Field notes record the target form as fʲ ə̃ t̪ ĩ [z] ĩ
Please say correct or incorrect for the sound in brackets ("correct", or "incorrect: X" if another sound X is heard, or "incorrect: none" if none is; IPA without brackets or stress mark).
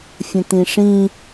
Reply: incorrect: ʂ